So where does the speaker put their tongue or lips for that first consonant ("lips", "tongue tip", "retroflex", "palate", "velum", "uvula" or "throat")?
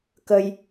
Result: velum